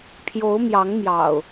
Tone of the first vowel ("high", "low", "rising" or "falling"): rising